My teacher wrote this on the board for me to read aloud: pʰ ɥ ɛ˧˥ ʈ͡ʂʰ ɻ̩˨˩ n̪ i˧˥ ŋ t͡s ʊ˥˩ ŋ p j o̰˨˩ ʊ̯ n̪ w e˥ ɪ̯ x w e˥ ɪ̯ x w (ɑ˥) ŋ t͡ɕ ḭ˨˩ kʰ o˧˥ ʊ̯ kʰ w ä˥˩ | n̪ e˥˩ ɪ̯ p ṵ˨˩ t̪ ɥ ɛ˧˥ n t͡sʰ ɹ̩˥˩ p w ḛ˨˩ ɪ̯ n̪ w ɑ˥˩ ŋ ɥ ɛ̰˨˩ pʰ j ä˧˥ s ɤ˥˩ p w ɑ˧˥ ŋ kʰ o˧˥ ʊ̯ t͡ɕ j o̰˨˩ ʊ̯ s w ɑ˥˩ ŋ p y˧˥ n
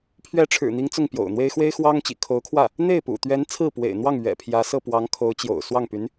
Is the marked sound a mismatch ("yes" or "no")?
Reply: no